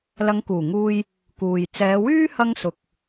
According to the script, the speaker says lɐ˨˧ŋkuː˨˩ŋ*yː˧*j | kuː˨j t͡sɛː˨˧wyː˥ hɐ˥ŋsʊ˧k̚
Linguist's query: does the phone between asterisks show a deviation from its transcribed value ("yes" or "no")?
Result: yes